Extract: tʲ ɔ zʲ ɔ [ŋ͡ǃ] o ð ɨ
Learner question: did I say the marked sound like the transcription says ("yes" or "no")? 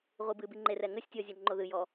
yes